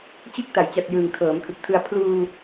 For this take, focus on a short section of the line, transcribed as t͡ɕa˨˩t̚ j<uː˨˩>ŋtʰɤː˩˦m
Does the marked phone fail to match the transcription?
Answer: yes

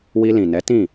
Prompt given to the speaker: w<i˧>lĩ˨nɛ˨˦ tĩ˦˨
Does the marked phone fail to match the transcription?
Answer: no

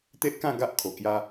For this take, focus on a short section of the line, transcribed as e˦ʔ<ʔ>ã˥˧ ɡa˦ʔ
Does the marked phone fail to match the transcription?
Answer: yes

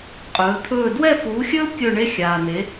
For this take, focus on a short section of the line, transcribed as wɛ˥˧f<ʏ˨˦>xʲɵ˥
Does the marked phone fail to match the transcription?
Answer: yes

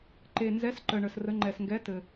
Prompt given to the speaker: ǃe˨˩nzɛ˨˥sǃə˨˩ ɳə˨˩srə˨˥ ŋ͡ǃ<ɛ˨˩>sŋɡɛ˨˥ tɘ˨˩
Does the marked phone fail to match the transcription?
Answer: no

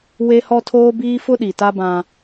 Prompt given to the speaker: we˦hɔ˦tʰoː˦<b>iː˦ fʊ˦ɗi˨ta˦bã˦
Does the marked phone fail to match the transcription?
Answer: no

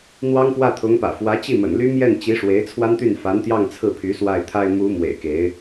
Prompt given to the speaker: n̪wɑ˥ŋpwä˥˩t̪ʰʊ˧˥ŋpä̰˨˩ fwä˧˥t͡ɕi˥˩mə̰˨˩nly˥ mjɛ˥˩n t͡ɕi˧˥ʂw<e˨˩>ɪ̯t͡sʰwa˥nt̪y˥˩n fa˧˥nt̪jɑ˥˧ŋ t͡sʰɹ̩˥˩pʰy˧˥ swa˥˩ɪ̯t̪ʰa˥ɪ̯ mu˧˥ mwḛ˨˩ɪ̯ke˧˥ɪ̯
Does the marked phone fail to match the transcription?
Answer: yes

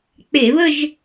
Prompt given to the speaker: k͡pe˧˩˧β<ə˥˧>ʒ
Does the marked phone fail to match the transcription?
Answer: no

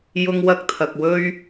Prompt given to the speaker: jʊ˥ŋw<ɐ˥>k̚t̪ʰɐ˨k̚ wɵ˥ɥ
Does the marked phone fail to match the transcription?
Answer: no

